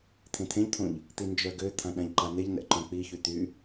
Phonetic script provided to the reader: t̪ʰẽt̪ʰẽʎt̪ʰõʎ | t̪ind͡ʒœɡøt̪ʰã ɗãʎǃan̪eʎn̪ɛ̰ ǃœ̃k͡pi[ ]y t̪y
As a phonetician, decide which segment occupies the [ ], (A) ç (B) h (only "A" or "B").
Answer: A